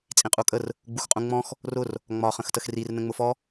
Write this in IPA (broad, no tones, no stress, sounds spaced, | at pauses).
t͡sʼ ĩ qʼ u kʼ ə r | ɡ͡b u x qʼ ũ ŋ͡m ɔ̃ x | r ʊ r | ŋ͡m ɒ χ ə̃ x t ə x r i r n ə̃ ŋ͡m ʊ f ɔ